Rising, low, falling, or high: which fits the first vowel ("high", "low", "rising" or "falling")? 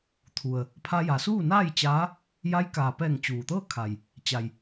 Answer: low